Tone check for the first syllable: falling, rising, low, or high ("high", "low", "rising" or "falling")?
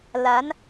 rising